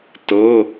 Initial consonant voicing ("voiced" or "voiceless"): voiceless